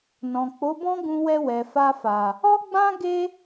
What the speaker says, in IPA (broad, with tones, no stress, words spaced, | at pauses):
nɔ̃˨k͡po˨˦bɔ̃˦ ɡũ˧wɛ˧ wɛ˨fa˧fa˨ | ɔ˦ɡ͡bã˦ ɡe˦